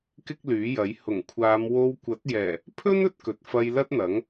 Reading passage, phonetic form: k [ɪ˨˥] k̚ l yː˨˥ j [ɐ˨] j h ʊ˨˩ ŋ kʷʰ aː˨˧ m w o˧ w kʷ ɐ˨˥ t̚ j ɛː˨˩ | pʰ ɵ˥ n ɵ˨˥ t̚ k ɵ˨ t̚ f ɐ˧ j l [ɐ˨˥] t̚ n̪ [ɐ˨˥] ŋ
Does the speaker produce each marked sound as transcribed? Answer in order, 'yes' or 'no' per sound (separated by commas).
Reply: no, no, no, yes